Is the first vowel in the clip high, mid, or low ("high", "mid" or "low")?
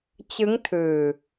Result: high